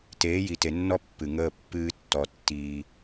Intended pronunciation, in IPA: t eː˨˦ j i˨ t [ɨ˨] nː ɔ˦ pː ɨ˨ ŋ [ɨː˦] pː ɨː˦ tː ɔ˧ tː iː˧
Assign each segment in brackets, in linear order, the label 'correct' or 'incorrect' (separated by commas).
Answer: incorrect, incorrect